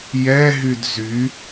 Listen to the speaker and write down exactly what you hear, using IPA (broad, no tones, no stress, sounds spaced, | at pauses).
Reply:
j ɛ ɦ y d z y